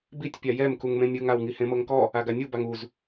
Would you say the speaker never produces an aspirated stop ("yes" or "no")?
yes